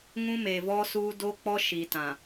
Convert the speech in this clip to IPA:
ŋũ˦me˨vɔ˦suː˦ do˦k͡pɔ˦ ʃi˨tã˨

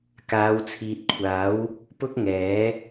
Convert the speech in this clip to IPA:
kaː˨˧wt͡sʰiː˨t̚kʷʰaː˨˥w | pʊ˥k̚ŋɛː˨˥

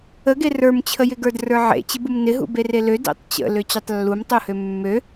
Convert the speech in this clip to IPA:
əɡe rə˞mt͡ɕʰəjɪɡə˞d rə˞ʕḛt͡ɕɪbum nɪɦṵ berelø dḛtˤt͡ɕə̰lø t͡ɕutˤlːumtˤuhø mːø

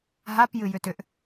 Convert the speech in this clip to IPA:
ɦapjɨjʏ tʏʔ

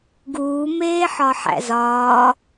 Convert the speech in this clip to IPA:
ɡuː meːħɒħæ̰zɒː

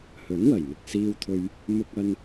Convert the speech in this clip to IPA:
hɵ˨˥nwɐ˨˩jmɪ˨k̚ siː˧wt̪ʰɵ˧ɥ | mʊ˧k̚ɐ˧n

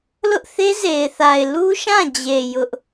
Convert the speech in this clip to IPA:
lʊ˦ʔθe˦ze˨ɪ̯θa˨ɪ̯ lu˦ʃã˦˨d͡ʑe˨ jʊ˦ʔ

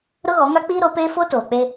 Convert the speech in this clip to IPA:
ɾʊ˦ɣɔ˨˦ŋa˦ k͡piː˦ɾo˨˦peː˦ fo˦toː˨k͡pe˦

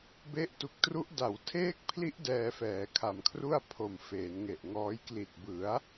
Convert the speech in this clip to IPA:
be˦˥ʔtu˨˩k̚tru˦˥ʔ da˩˦w tʰeː˦˥k̚pʰli˦˥ʔ dɛː˧fɛː˩˦kʰa˨˩mkʰru˥˩a̯ pʰo˨˩mfeː˩˦nŋe˨˩ʔŋɔː˦˥j kli˨˩t̚bɯ˩˦a̯

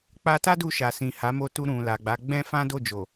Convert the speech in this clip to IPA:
k͡pa˧ta˦ du˧ʃa˨ sĩ˨ha˨˦mo˧tu˧ ɾũ˨ la˨ɡ͡ba˨˦ɡ͡bɛ̃˦ fã˦do˦˨d͡ʒo˨

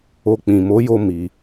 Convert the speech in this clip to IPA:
o˧ k͡pĩ˨mo˨˦jo˧ mi˧

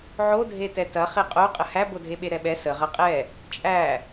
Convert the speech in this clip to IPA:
ʕodʱetɛ tɐ χeqʼoqʼə hæbodʱeɓe ɾɛɓɛ sə ʁɐqʼɛ | t͡ʃʼæ

